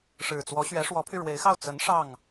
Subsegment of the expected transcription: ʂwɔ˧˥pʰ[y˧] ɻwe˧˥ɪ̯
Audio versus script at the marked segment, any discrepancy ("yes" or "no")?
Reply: no